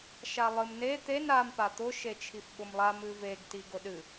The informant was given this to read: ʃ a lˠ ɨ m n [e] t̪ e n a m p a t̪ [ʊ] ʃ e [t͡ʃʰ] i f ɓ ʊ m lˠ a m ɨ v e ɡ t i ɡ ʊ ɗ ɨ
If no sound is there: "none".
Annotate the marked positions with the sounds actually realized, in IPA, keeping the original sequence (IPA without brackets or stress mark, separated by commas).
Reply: e, ʊ, t͡ʃʰ